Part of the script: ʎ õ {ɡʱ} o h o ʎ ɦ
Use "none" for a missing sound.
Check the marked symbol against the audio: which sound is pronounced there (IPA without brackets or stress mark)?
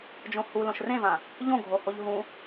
ɡʱ